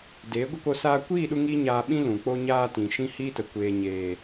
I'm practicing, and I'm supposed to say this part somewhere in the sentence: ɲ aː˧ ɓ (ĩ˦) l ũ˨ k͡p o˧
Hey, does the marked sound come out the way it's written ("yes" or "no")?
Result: yes